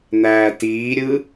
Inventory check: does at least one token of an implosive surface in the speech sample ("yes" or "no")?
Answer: no